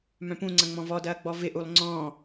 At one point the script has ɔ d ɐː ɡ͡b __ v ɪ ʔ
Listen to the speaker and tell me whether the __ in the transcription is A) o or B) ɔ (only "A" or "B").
B